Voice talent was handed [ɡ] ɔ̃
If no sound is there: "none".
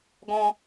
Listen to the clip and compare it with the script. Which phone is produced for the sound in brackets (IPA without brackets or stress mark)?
ɡ